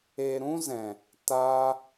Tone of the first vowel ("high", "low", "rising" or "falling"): low